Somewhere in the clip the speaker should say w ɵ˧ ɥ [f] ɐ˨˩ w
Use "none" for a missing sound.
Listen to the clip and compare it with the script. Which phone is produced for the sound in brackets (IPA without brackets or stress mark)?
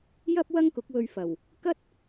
f